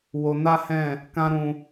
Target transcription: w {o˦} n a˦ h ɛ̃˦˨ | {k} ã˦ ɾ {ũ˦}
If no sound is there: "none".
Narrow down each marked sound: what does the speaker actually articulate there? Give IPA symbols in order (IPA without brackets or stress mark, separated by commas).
o˧, k, ũ˧